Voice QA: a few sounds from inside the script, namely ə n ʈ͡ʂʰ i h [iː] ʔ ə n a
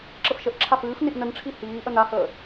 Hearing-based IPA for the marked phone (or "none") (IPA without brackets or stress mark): iː